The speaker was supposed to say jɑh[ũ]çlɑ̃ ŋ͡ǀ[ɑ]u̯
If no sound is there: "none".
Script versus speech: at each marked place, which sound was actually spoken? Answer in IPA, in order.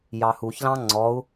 u, ɔ

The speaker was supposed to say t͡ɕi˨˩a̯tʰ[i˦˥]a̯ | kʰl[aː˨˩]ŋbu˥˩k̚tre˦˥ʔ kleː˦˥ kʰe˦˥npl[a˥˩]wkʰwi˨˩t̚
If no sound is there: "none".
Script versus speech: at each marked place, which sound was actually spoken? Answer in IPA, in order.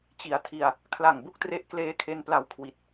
i˧, a˨˩, a˧

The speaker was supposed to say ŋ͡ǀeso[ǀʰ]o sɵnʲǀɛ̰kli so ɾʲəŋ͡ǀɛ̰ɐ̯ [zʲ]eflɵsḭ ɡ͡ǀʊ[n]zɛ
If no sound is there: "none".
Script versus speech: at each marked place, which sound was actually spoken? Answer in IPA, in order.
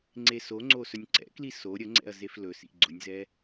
ŋ͡ǀ, z, nʲ

